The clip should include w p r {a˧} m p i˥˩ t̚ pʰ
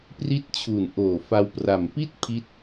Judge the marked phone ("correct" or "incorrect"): incorrect